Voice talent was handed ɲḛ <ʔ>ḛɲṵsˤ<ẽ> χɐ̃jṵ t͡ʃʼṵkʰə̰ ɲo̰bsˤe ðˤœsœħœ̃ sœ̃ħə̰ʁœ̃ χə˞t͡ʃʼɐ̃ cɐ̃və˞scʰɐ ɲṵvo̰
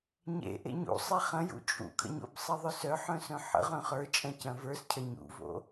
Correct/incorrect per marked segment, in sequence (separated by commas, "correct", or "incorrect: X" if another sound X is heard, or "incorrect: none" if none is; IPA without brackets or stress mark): correct, incorrect: e